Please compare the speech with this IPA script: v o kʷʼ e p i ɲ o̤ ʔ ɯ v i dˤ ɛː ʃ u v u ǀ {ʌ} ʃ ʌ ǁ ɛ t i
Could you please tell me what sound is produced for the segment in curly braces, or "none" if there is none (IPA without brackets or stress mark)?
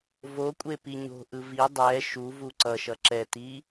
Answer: ʌ